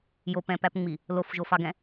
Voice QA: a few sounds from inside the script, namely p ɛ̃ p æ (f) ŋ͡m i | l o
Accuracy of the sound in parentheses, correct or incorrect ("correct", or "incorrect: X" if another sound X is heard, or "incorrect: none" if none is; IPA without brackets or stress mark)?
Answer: incorrect: p